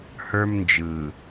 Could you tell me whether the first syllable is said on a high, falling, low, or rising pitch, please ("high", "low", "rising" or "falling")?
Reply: high